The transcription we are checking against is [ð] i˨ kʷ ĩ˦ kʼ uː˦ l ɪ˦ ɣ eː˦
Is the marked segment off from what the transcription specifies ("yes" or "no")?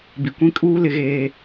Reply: yes